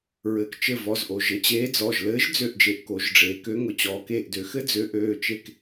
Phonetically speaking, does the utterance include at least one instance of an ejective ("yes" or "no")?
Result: no